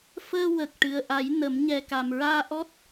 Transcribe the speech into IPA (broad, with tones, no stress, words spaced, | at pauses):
fəː˧ wə˨˩k̚ʈɨ˨˩ə̯ʔa˨˩˦j nə˨˩˦m ɲɛ˨˩ka˨˩mɹaː˧ ʔɔ˦˥t̚